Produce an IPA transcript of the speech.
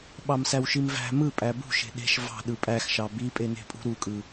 ɓ ɑ m s æ w ʃ i m v æ̤ m ɯ pʼ æ b ṳ ʃ e̤ ɗ e̤ ʃ v ɑ̤ ɗ ɯ pʼ æ x ʃ ɑ b i pʼ e n e̤ pʼ ṳ ɾ u kʼ ɯ

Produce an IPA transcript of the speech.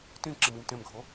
t ĩ ǁ i m i m t ẽ m ɡʱ o

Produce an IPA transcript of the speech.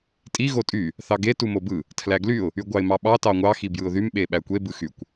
tʼ i ɣ o tʼ y | θ ɑ ɡ e t u m o b ɯ | tʰ l æ ɡ l y ʊ̯ | y ɡʷ ɑ ɪ̯ m ɑ ɓ ɑ t ɑ ŋʷ ɑ x i b j ɯ ʊ̯ ð y m ɓ e ɓ æ kʷ e b ɯ x y kʷ

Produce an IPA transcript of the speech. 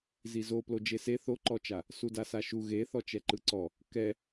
z i z o p l o d͡ʒ e s e θ o ǃ ɔ t͡ʃ a | s u d a s a ʃ u ɣ e θ ɔ t͡ʃ ɛ ǃ ɯ ǀ ɔ | k ɛ

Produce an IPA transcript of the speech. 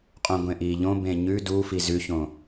qʼ õ ɡʷ ẽ ʔ iː ʎ õ b ẽ ɲ ʉ d u f i z ʉ ç õ

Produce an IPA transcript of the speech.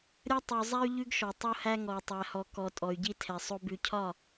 ɾʲ ɐ˦ tˤ ʉ˨ zˤ æ˦ y̯ ʎ ʉ˦ ɡ ʃ ɔ˨ tˤ o˦ h æ˦ ŋ ɔ˨ i̯ tˤ æ˨ h ɔ˨ k ɔ˨ tʼ ɔ˨ y̯ ɟ i˦ tʰ ɛ˨ sˤ o˦ b ʉ˨ cʰ ɒ˦˨

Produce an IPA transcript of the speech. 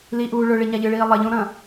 l i ʔ uː ɭ ɵ ɭ i ɲ a ʎ ɨ ɭ iː lˠ ɐ ʎ õ ɾ ɐ̃ː

